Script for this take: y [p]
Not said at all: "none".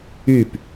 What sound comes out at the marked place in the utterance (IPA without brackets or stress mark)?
p